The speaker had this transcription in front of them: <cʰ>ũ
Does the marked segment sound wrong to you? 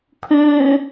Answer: yes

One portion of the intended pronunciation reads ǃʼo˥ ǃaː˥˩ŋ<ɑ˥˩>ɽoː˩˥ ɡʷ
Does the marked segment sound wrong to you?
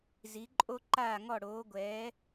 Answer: yes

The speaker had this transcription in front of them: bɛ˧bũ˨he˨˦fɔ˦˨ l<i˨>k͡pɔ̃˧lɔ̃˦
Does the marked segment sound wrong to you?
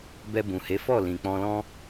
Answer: yes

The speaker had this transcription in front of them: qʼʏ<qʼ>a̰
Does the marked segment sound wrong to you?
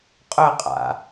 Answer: no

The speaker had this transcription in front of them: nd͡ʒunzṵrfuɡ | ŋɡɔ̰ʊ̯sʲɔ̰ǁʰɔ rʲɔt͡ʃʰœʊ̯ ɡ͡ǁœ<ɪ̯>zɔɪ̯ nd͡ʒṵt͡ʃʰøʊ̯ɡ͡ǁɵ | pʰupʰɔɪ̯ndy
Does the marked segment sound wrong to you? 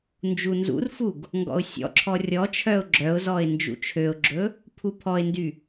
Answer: yes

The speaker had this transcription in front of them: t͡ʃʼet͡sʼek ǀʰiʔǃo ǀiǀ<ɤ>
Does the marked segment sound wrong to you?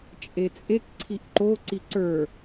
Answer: yes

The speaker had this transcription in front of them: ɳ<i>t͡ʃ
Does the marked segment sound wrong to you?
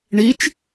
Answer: no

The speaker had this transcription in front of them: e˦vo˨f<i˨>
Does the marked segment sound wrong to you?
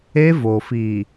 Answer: no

